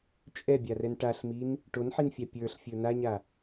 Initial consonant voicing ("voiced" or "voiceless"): voiceless